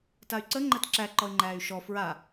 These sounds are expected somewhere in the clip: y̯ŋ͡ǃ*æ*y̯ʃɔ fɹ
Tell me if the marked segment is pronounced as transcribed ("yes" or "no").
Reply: no